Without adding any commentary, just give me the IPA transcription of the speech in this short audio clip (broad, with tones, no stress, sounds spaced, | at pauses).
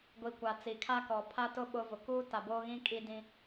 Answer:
ɡʷ i˨ kʷ a˨ t͡s i˨ kʰ a˦ k ɔ˨ pʰ a˦ t ʊ˦ ɓ ʊ˦ v ʊ˨ k uː˦ t a˨ b oː˦ ɣ ĩ˦ kʼ i˦ d ĩ˦